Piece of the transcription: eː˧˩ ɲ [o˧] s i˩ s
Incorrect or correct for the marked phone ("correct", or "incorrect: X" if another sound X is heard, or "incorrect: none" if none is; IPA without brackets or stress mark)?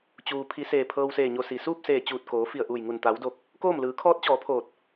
correct